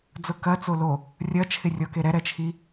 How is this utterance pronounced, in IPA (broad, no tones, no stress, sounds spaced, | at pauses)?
d͡z ʊ k ɐ t͡s o l o | rʲ ɐ t͡ʃʰ ɪ rʲ ɔ k e ɾ ɛ ɾ ɛ t͡ʃʰ i